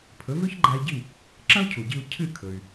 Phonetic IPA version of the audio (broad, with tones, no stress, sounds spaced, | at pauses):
pʰ ɵ˩˥ v ʉ˥ ç ɡ͡ǃ a˧ i̯ ɟ i˥˩ | ǁ ɐ̃˥ u̯ cʰ u˩ ɟ i˧ u̯ cʰ ɨ˥˩ kʰ ɵ˩ y̯